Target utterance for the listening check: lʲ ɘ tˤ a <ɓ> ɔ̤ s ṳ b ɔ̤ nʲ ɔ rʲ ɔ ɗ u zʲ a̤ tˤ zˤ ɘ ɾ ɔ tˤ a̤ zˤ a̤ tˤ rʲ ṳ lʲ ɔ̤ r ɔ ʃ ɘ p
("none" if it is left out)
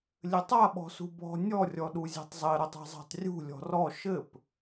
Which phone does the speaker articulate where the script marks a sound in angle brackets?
ɓ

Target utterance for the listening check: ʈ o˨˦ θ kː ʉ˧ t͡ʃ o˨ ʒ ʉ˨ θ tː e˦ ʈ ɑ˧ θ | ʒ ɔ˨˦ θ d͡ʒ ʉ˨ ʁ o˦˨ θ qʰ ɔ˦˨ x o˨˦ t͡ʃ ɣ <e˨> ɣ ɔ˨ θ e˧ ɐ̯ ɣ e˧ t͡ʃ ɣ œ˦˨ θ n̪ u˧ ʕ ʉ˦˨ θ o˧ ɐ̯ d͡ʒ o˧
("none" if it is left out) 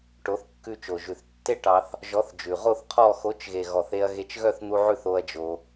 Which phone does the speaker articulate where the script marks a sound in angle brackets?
e˨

